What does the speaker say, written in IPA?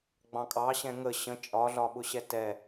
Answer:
ɡ͡bɑ̃kʼɑɕɛ̃ ŋə ɕə̃ t͡ʃʼɒɮɒɓʊɕɛ tɛ

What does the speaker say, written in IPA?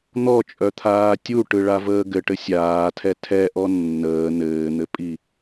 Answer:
n̪ɔt͡ʃʼœt̪ʰaː tʲuʈɯɭavəː ɡɘʈɘ sʲaːtʰɛ tʰɛʔɔ nːəː nɘːn̪ɘpʼi

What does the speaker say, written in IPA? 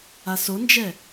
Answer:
asond͡ʒɛ

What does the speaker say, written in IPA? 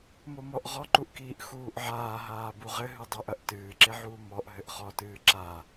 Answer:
momɔʔ ʁɔǃuʔkiːʔ xuːʔʕaːɦaː buʁɘ ɦɨdˤɐʔɐʔ tɨːǁeʕuː mɔʔ ɦɘʔχɔtɨː ǁa

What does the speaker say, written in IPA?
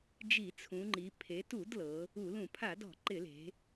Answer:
d͡ʒi˧˩˧t͡sʰũ˩˧ŋ͡ǃi˩˧ pʰe˩˧tu˧˩˧d lɤ˩˧ | u˧˩˧lũ˧˩˧ pʰa˧˩˧dɔ̤˧˩˧ ǃɪ˧˩˧le̤˩˧

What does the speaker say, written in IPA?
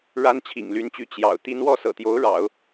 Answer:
ɻa˥nt͡ɕʰḭ˨˩ŋly˧˥nt͡ɕy˧˥ t͡ɕjɑ̰˨˩ʊ̯t̪i˥n wɔ˥˩sɤ̰˨˩t̪jo˧˥ʊ̯ ɻɑ̰˨˩˦ʊ̯

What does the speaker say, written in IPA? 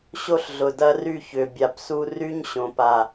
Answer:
ɕo˦ɬɮʊ˨dɐ˦ry˦˨ çʏ˨ bʲa˨psu˦ ry˦ɲɕõ˨pa˨

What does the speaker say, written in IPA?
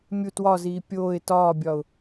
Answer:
mʲu twɒziː pʲoːɪ̯ tɒːbʲɒʊ̯

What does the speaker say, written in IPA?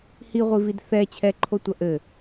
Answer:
hiʁʷivid θɛ t͡ɕʰɛǃʰotʷɐ ʔɘ

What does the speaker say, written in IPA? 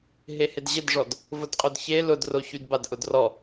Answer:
ɦehɪdʑɪdʐɔd | vʊdqʼʊdçe lʊdroçydbad ʔʊdrɔ

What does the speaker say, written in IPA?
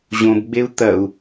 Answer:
ʑõbɡ͡beu̯ t̪ɐu̯

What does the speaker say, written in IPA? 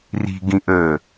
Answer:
ri̤ɡĩʔəː

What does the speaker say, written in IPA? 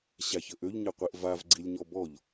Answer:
ɕaçəʔøʎ ɲəqʷiʔvav ɡ͡ǀilʲɲɔbɔʎ

